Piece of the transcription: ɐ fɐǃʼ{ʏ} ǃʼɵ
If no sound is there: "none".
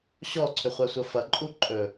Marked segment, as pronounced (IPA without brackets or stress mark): u